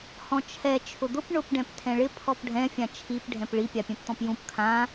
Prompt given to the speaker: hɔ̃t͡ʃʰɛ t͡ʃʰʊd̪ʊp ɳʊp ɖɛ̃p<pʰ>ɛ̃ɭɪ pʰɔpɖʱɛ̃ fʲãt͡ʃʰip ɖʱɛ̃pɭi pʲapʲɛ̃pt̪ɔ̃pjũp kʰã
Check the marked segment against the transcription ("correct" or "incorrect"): incorrect